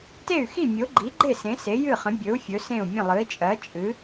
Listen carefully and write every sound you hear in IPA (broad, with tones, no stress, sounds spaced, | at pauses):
t e˥˩ y̯ x i˥˩ mʲ o˩˥ ɡ͡ǃ i˩˥ ɡ͡ǃ e˥˩ s ẽ˩˥ s e˩˥ j ɨ˥˩ χ ə̃˩˥ bʲ ɵ˩˥ u̯ fʲ ɵ˩˥ s ẽ˥˩ u̯ mʲ ə̃˥˩ lˠ ɨ˩˥ i̯ t͡ʃʼ ɜ˩˥ t͡ʃʼ ɨ˩˥